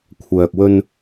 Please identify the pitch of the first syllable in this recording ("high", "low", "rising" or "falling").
low